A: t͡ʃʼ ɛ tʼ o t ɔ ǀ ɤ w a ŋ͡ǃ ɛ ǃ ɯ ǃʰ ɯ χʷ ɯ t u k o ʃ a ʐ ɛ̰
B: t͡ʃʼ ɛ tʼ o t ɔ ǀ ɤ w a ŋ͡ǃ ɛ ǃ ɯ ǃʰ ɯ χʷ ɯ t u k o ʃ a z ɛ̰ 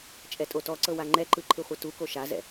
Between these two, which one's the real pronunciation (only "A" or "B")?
B